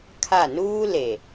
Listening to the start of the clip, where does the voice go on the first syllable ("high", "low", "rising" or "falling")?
falling